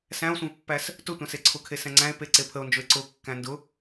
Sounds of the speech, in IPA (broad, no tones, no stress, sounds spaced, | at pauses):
s æ̃ o̯ sʷ ẽ v pː æ s | t ʊ tʷ æ̃ s e ǀʰ ʊ kʰ e s ɛ̃ ŋ͡ǀ æ̃ e̯ p e ǀ e pʰ ə o̯ n d͡ʒ ʊ e̯ ǀ ʊ kː æ̃ n d ʊ